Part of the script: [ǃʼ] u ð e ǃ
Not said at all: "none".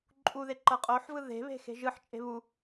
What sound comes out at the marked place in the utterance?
ǃʼ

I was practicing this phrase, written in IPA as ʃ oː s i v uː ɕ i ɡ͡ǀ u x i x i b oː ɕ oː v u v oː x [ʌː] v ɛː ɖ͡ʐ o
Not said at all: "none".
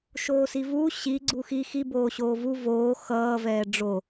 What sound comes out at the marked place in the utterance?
ʌː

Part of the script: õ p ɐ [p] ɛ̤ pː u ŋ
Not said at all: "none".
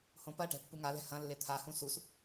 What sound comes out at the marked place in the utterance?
ʈ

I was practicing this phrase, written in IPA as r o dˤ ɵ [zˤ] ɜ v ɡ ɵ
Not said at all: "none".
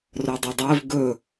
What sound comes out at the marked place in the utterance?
dˤ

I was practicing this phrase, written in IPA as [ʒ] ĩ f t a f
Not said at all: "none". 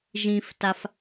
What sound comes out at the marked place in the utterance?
ʒ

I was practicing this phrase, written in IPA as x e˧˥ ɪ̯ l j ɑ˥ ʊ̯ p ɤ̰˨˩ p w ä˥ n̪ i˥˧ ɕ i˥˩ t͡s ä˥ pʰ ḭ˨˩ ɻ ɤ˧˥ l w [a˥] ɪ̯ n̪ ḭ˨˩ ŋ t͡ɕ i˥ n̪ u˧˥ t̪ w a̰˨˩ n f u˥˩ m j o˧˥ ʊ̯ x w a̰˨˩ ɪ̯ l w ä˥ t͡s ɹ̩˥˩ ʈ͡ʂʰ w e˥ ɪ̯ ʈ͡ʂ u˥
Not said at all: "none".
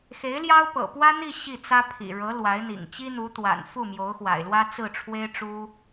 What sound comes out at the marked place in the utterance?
a˧˥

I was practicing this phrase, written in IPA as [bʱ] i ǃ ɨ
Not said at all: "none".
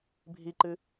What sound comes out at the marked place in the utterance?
bʱ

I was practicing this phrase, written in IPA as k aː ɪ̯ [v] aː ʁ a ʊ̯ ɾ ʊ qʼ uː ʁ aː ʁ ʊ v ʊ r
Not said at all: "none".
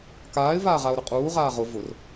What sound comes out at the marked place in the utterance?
v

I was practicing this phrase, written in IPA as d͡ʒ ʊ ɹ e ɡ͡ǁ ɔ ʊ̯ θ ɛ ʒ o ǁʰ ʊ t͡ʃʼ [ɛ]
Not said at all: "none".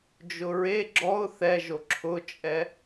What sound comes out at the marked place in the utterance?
ɛ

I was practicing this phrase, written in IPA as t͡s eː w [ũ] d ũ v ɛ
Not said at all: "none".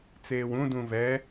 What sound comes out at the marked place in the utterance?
ũ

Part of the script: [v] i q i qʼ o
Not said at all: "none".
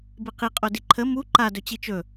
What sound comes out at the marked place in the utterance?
b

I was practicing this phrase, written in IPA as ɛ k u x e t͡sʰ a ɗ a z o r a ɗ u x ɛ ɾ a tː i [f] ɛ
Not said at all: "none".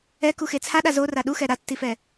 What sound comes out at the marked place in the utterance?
f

